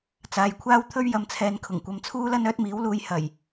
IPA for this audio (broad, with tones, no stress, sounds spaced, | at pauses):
t͡s aː˨ j kʷʰ aː˥ w t̪ʰ ɵ˥ ɥ j ɐ˨ m t͡sʰ ɛː˨ n kʰ ʊ˨˩ ŋ kʷ ɐ˨ m t͡sʰ uː˥ l ɐ˥ n œː˥ t̚ m iː˨˥ w l uː˨˧ j h ɐ˨˩ j